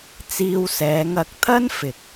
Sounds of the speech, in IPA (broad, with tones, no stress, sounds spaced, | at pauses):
t͡s iː˧ w s ɛː˨˧ ŋ ɐ˨˥ k̚ t̪ʰ ɐ˥ n f ɪ˨ k̚